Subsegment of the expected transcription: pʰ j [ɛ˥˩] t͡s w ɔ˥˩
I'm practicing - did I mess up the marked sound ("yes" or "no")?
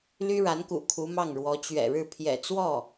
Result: yes